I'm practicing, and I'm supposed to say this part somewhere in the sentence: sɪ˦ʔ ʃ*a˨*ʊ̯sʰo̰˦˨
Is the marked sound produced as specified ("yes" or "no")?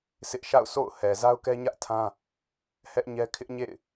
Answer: no